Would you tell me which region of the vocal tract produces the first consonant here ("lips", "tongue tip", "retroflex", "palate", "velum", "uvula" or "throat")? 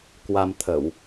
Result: velum